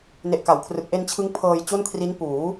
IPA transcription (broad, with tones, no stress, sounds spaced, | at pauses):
n e˨˩ ʔ k a˩˦ w kʰ r ɯ˨˩ k̚ ʔ e˧ n t͡ɕʰ ɯ˦˥ ŋ pʰ ɤː˧ j t͡ɕ o˥˩ n kʰ r i˦˥ n p uː˩˦